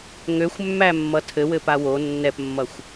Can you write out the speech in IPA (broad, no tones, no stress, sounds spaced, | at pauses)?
ŋ ø xʷ mː æ mː ʌ tʰ ɘ w ɘ p a w o nː ɛ p mː ʌ xʷ